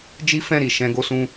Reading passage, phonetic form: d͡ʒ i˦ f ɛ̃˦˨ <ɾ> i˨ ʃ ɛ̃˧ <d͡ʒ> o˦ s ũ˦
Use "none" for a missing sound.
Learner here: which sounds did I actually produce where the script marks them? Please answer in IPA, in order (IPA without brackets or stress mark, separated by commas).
ɾ, ɡ